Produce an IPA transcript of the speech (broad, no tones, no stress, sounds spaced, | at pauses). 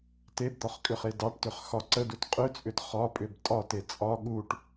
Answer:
t e b d̪ ɒ χ kʼ ʏ χ e d ɑ ʈ t ʏ χ x ɒ ǀ ə d u t qʼ ʏ t͡sʼ ʏ t χ ɒ pʼ ʏ b tʼ ɒ t e t͡sʼ ɒ ɠ u ʈ